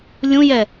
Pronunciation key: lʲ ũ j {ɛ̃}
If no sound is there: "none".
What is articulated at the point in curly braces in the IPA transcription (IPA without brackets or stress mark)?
ɛ